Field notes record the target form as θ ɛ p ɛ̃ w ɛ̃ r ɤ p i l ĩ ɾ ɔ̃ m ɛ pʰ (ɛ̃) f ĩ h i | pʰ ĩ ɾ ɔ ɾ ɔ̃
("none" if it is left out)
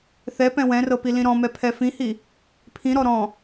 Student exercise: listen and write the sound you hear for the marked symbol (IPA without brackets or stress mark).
ɛ